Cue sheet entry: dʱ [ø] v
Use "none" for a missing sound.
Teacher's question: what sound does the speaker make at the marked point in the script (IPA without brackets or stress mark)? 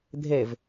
e